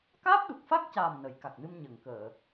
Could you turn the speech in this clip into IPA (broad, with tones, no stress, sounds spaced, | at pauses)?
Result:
k aː˦˥ p̚ ɗ u˨˩ k̚ f a˦˥ k̚ c aː˨˩ m n ə˨˩˦ j k a˨˩ k̚ n ɨ˧ m ɲ ə˨˩˨ ŋ k əː˨˩˨